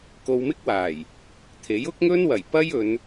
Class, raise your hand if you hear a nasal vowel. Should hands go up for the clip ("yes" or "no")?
no